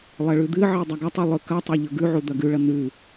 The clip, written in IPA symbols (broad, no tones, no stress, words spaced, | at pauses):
lˠɐɭʉd̪ɨʕi dˤɐɡɐtˤu lˠɵkɐtˤɐ ʎɵɡʉʕu d̪ɐɡʉɭɐ n̪ʉ